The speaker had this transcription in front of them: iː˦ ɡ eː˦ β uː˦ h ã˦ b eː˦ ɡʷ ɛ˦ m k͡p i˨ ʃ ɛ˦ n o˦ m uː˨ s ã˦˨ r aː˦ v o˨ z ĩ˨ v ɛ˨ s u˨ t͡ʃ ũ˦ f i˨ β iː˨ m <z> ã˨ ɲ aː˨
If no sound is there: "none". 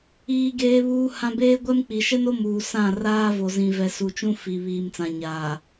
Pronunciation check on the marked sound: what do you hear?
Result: t͡s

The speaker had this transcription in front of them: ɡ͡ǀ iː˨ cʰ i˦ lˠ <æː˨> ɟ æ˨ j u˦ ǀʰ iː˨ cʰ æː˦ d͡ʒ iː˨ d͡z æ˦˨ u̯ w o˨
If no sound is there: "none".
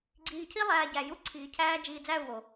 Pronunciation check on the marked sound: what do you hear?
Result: æː˨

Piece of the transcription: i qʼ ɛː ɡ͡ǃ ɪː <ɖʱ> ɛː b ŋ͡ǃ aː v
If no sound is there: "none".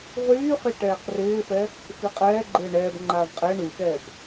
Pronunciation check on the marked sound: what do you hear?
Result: ɳ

